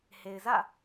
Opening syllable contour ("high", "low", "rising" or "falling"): low